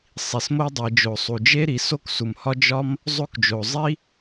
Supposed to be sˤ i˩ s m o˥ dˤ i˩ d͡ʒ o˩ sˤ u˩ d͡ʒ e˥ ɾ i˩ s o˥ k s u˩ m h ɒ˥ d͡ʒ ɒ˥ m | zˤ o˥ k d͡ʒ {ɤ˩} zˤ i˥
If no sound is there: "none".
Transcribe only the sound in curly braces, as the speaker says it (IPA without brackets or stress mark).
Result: o˩